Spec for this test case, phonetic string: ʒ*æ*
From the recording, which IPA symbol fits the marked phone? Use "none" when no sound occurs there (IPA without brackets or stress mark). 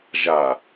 a